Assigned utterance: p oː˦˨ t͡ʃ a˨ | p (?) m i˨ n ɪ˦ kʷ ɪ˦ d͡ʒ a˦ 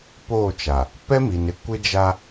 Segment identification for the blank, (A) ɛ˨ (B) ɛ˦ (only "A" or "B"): B